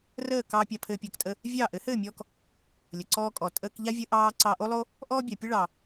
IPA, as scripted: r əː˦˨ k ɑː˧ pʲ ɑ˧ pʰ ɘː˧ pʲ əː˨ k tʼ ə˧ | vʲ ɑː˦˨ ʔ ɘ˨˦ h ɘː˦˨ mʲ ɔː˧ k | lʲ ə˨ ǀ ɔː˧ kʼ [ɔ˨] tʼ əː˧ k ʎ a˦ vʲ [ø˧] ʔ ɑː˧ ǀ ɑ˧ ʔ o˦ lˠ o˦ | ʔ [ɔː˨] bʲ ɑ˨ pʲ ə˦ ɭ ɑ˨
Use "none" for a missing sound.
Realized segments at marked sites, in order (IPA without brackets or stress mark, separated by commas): ɔ˨, ə˧, ɔː˦